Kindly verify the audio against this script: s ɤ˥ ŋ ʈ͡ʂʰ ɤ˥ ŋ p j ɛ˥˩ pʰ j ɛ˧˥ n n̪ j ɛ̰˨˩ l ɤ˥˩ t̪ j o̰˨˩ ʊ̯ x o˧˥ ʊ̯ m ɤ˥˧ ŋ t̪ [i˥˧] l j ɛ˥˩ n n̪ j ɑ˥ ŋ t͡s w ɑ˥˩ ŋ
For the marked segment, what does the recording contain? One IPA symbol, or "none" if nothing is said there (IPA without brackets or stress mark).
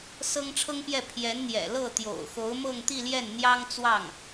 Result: i˥˧